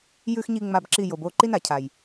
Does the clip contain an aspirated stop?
yes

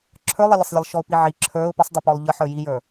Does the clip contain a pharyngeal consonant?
yes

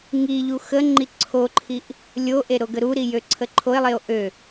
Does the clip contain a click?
yes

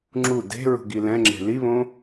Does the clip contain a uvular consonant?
no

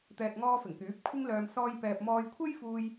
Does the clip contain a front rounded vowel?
yes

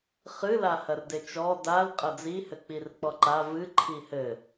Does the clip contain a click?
yes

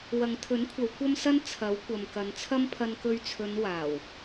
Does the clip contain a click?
no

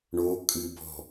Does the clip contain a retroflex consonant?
yes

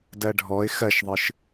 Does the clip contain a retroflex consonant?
yes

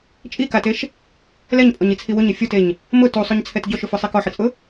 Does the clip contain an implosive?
no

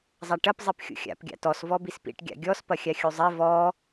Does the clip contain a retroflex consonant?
yes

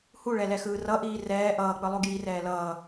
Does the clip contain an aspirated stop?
no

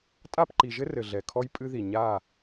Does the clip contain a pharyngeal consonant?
no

